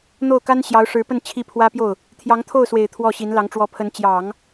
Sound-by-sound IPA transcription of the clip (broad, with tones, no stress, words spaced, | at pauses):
n̪o˥˩ʊ̯ka˥n ɕjɑ˧˥ʊ̯ʂɻ̩˧˥pə˥˧n t͡ɕʰi˥˩pʰwä˥pjo˥˩ʊ̯ | t̪ʰjɑ˧˥ŋt̪ʰo˥˩ʊ̯swe˨˩ɪ̯ t̪ʰwɔ˥˩ɕi˧˥nlɑ˧˥ŋ ʈ͡ʂwɔ˧˥pʰə˧˥n t͡ɕjɑ˨˩˦ŋ